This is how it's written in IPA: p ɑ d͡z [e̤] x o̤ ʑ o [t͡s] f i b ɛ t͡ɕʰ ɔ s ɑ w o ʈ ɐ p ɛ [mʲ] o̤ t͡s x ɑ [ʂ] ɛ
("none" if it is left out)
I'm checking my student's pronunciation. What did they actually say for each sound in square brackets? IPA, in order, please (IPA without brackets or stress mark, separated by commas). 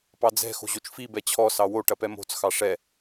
ɛ̤, t͡ʃ, m, ʂ